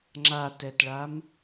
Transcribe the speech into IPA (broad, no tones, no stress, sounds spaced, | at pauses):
ŋ͡ǁ a t ɛ t ɭ a m